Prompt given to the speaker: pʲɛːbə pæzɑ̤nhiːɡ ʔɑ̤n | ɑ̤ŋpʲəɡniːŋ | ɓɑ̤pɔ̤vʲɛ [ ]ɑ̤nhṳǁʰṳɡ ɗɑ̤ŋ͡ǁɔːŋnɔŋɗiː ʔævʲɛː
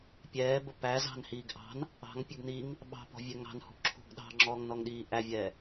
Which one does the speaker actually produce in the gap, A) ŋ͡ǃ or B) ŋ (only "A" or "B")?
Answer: B